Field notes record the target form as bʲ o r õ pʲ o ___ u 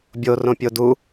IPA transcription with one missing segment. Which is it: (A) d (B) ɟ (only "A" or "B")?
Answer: A